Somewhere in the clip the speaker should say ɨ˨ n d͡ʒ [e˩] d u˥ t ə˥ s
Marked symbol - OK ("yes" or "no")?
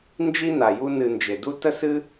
yes